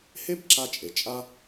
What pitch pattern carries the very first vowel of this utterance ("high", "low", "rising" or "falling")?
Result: high